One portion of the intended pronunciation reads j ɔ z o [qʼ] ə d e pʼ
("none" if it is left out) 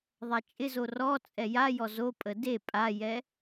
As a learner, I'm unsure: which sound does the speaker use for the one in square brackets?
pʼ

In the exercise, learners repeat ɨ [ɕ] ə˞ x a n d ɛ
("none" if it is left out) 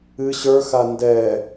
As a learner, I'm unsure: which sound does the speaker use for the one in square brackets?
ɕ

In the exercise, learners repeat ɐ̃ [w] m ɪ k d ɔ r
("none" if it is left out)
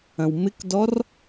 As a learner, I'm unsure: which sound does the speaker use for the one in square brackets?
w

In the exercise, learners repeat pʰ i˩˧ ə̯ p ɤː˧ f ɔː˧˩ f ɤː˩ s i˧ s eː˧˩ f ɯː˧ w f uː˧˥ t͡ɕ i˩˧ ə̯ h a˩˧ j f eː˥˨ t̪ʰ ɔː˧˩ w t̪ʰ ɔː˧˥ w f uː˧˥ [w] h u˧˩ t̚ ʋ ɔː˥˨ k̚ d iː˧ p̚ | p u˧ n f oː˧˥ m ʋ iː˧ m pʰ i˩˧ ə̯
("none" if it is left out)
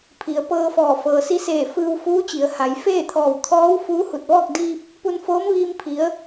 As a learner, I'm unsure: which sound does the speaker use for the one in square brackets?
none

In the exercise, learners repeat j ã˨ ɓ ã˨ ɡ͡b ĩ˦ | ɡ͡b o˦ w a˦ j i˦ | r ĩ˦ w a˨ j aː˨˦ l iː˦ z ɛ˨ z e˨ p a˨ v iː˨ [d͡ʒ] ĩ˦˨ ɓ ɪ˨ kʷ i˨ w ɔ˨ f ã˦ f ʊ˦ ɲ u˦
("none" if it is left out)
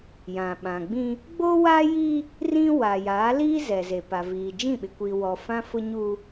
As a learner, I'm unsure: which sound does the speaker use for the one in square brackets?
d͡ʒ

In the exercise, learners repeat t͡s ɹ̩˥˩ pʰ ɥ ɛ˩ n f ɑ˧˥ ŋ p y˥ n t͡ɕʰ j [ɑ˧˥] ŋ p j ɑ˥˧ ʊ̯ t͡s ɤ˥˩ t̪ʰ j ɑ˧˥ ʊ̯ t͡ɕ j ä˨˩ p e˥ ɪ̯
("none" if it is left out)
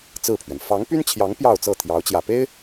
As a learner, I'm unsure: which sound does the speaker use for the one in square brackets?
ɑ˧˥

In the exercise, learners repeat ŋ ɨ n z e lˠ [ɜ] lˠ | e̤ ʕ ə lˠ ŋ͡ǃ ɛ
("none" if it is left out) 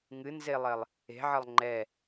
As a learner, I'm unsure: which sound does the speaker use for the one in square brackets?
ɜ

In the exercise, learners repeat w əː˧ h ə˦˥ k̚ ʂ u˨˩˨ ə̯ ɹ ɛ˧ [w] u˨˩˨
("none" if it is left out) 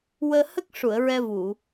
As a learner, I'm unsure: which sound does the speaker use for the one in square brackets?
v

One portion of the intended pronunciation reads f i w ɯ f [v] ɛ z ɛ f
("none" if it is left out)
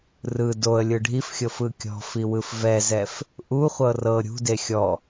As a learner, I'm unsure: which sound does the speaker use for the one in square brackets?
v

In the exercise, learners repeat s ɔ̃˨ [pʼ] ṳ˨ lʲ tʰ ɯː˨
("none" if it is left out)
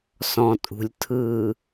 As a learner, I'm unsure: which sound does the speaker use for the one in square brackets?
tʼ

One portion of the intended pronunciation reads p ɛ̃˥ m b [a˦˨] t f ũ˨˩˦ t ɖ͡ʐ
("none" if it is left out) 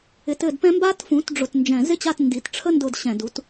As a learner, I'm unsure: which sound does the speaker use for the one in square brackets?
a˥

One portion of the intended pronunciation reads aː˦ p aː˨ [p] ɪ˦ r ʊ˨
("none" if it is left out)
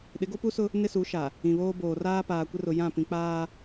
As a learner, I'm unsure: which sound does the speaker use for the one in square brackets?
kʷ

